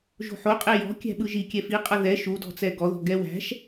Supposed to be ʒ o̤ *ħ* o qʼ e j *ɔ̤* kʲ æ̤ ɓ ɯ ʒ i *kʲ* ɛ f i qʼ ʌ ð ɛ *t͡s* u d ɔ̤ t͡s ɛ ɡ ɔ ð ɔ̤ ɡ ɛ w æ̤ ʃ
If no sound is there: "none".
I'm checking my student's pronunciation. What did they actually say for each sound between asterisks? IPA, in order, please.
ħ, ɔ̤, kʲ, ʃ

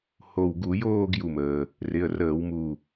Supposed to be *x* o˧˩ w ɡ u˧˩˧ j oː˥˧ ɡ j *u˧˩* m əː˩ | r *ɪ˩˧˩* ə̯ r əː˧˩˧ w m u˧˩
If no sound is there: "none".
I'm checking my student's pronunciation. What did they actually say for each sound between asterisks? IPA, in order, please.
h, u˧˩, ɪ˩˧˩

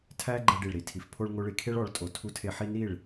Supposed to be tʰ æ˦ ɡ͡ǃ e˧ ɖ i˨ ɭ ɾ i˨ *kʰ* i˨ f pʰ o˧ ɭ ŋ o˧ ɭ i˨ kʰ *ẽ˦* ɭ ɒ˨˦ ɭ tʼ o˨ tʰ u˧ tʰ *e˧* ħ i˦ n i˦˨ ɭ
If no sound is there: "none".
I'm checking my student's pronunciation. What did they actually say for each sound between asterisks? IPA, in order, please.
tʰ, e˦, e˧

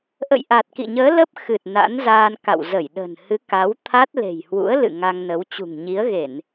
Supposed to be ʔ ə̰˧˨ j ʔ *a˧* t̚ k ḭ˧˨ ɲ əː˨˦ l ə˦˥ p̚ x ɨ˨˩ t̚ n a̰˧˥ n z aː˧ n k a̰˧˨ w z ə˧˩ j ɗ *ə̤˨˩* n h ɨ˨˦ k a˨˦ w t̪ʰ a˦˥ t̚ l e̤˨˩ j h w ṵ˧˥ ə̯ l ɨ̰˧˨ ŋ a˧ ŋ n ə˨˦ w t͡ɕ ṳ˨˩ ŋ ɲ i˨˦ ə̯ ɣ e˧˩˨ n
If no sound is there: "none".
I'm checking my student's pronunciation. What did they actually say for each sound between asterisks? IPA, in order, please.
a˨˩, ə̤˨˩

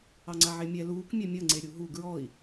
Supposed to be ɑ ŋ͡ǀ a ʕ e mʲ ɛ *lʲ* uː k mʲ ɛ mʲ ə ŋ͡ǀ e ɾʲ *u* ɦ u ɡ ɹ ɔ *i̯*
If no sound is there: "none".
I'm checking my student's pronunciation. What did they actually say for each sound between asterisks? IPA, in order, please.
l, u, i̯

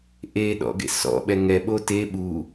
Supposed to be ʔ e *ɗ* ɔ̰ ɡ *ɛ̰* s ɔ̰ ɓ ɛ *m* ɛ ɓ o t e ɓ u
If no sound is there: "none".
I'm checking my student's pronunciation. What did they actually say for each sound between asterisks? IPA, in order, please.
ɗ, ḛ, ŋ

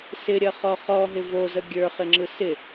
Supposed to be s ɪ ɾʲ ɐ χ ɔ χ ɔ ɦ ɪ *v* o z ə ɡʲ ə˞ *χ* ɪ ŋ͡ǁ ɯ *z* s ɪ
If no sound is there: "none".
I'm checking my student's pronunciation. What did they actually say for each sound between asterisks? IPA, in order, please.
v, χ, none

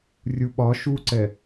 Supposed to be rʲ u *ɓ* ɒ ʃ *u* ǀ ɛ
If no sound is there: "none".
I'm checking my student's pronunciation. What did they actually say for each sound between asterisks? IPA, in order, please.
ɓ, u

